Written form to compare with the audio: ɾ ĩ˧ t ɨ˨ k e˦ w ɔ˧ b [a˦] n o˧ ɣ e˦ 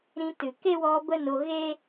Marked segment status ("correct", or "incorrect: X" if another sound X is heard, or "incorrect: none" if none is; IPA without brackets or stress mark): incorrect: ə˦